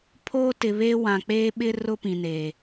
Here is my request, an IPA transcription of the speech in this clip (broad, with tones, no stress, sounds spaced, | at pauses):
pʰ oː˦ t ɪ˨ β eː˦ w ã˨ k͡p eː˦ ɓ ɪ˦ r ʊ˦ p ĩ˨ n eː˨